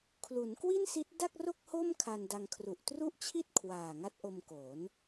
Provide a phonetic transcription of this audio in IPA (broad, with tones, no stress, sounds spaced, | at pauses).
kʰ l u˩˦ n k w i˥˩ n s i˦˥ t̚ d a˥˩ k̚ r o˥˩ k̚ h o˥˩ m kʰ a˧ n d a˧ ŋ kʰ r u˨˩ ʔ t r u˥˩ ʔ t͡ɕʰ i˥˩ t̚ kʰ w aː˨˩ ŋ a˦˥ t̚ ʔ o˧ m k oː˩˦ n